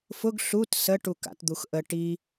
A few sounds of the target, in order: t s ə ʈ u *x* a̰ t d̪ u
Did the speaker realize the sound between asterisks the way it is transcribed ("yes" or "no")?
no